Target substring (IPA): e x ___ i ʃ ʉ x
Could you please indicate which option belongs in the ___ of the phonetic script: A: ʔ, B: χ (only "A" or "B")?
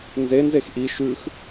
A